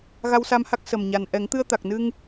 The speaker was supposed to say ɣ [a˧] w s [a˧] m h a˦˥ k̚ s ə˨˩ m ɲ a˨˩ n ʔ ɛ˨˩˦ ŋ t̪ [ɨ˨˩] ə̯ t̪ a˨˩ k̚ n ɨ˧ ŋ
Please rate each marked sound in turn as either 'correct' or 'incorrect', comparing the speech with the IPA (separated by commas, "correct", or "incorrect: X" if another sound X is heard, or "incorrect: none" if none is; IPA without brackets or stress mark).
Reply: correct, correct, incorrect: ɨ˧